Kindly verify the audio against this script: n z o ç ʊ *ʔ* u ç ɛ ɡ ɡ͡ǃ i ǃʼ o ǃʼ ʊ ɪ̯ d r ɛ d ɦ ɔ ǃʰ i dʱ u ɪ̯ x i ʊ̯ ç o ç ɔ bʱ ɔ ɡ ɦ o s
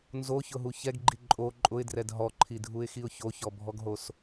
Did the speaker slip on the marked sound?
yes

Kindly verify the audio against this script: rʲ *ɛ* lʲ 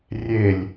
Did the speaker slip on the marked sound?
yes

